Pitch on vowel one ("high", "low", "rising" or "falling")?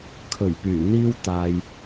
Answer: low